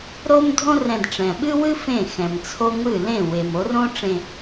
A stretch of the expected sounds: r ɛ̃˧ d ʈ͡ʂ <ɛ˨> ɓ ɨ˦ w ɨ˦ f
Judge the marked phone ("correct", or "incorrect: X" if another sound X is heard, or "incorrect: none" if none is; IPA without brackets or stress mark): incorrect: ɛ̃˨